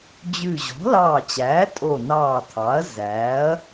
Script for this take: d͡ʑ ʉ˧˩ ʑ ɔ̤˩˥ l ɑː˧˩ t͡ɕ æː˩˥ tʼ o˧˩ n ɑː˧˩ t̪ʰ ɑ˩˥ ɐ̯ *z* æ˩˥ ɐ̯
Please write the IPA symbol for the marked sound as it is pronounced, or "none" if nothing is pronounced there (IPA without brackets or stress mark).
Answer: z